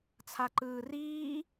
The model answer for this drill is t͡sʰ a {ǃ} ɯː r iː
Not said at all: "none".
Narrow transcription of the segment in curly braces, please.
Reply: ǃ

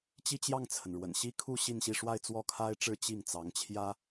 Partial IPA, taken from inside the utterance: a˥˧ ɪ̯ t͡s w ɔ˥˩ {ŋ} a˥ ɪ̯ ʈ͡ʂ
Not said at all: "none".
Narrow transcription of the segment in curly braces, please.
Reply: kʰ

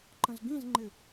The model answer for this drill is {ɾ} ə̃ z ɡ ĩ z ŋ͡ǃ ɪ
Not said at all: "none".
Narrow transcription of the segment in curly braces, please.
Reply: ǃ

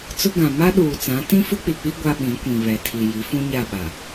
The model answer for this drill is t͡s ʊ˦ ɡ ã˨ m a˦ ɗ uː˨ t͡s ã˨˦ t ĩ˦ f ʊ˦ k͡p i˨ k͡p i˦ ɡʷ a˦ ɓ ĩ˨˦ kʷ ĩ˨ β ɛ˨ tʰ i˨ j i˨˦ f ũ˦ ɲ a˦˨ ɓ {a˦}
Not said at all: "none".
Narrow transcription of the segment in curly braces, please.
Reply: a˨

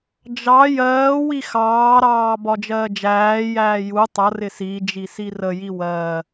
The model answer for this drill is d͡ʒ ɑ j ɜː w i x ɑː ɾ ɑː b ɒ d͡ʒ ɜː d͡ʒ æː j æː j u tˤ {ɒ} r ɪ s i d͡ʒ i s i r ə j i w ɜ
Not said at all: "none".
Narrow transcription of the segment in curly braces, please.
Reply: ʌ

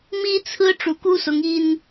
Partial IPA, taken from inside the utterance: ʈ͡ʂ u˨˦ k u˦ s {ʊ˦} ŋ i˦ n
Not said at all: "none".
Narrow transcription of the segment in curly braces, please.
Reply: ʊ˨˦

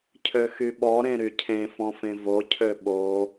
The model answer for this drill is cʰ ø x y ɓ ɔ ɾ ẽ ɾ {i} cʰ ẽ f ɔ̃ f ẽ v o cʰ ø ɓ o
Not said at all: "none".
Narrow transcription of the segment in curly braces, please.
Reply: y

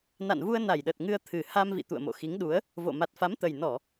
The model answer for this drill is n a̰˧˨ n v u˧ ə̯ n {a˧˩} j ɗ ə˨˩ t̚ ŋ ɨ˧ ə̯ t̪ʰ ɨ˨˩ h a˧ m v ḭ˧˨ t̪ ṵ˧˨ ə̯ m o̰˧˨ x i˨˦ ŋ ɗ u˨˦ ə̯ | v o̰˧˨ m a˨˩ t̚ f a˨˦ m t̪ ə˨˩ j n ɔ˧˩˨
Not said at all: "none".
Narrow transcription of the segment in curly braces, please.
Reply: a˧˩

